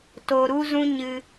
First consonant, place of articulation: alveolar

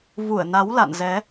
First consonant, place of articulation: labial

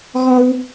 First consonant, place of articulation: velar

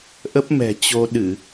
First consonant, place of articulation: glottal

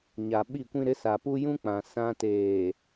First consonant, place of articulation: palatal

